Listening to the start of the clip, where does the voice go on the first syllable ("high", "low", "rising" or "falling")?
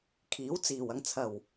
rising